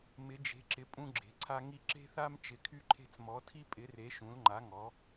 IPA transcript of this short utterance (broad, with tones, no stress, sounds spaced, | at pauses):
m ɪ˩˧ d͡ʒ e̤˩˧ ǁ ɪ˩˧ pʼ ũ˧ ɡ͡ǁ e̤˩˧ ǀʰ a˧ ŋ i˧ ǁ e̤˧ θ a˧ m t͡ʃ ɪ˩˧ kʰ y˧ ǃʰ e̤˧ t͡s m ɔ˩˧ tʰ i˧ pʼ ɪ˩˧ r e˩˧ ʃ ũ˩˧ l ŋ͡ǃ a˩˧ ŋ ɔ˩˧